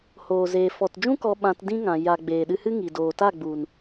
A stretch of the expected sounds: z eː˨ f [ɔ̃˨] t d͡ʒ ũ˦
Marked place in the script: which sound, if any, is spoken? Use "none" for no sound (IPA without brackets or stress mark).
ɔ˨